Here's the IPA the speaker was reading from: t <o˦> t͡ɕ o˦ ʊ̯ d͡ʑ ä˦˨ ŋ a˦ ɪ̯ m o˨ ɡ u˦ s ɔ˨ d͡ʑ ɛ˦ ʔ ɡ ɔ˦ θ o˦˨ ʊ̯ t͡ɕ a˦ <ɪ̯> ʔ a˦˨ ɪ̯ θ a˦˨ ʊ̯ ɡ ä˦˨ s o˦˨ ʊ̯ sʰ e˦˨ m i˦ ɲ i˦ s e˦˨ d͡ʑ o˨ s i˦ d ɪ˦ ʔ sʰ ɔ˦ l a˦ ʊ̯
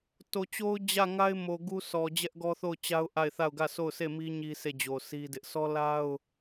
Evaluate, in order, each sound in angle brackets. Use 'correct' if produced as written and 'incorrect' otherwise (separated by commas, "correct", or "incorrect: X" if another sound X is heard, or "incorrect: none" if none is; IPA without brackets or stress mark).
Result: incorrect: o˨, incorrect: ʊ̯